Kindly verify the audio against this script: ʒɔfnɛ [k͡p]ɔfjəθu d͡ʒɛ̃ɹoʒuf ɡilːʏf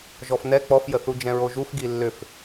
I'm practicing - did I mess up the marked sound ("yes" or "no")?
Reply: no